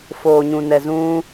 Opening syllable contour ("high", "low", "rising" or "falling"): low